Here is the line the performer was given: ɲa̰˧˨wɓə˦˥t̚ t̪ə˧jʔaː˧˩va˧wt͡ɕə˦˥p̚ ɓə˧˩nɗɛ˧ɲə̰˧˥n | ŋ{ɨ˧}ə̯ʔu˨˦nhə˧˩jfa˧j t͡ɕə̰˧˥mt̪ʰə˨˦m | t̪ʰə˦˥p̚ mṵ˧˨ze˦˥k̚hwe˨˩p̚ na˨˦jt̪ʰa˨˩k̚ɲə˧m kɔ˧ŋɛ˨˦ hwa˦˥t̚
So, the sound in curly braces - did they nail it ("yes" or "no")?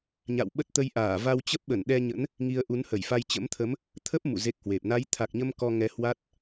no